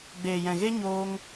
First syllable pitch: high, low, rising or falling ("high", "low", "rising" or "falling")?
low